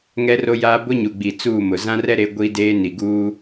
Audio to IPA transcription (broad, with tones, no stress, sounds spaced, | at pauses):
ŋ ɛ˦ r o˦ j aː˦ b ʊ˦ ɲ u˨ ɡ͡b i˨ t͡s uː˦˨ m ʊ˨ z ã˦ r ɛ˦ ɾ e˨˦ ɡʷ i˦ d eː˦ n i˨ ɡ uː˦